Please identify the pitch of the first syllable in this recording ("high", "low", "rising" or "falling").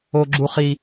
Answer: high